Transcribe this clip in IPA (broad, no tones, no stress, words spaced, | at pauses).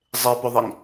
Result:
zˤepɵðˤiŋ